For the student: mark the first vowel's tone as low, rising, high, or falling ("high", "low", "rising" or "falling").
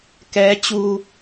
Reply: rising